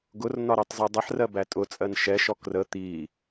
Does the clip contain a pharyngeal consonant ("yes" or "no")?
yes